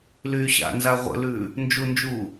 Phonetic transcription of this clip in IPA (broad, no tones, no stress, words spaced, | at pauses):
lyːɕa̰nza ʁʷə̰lʉː | nd͡ʒund͡ʒuː